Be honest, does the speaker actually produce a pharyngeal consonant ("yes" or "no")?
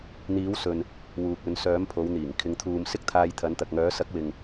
no